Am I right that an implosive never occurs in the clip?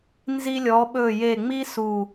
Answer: no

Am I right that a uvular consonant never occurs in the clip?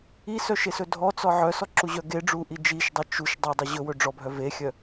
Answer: yes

